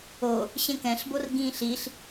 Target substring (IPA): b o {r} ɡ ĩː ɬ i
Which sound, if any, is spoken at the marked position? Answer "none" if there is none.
r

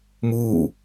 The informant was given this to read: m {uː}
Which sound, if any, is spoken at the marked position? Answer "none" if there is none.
uː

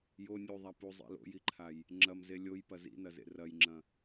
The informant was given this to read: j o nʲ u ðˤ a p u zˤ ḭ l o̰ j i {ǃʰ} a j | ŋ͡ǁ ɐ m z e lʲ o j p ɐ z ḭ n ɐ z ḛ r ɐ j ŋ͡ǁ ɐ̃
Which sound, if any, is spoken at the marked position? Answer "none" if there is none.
ǃʰ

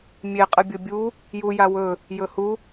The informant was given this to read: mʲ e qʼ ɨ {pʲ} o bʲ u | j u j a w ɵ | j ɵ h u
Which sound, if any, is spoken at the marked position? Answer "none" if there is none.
bʲ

